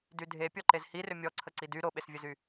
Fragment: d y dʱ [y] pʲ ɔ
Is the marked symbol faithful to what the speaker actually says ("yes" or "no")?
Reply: no